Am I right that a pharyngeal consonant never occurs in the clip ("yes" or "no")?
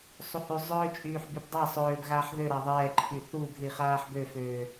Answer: no